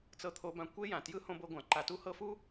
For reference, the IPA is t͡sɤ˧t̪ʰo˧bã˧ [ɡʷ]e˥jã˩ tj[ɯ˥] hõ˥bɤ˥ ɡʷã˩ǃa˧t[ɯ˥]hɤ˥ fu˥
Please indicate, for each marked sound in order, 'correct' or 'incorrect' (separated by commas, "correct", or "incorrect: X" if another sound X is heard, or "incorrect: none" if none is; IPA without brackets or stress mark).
incorrect: kʷ, correct, incorrect: u˥